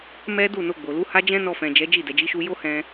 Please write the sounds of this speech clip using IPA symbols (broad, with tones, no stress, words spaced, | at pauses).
mɛ˦du˦˨no˧ ɡ͡bo˨lu˨˦ha˦ d͡ʒɛ̃˦nɔ˧fɛ̃˨ d͡ʒɛ˨˦d͡ʒi˦˨dɛ˨ d͡ʒi˨˦ʃu˧jo˦hɛ̃˧